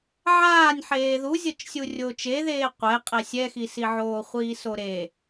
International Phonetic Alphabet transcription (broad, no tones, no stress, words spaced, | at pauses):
ʕaːnʲ ħeːðuzʲɤt͡ʃsʲu rʲoːt͡ʃeðeː qʷɛ qʼɛsʲɛxisi ʕoːχʷiːsoɾe